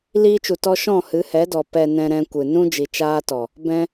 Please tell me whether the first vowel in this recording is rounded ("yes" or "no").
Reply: no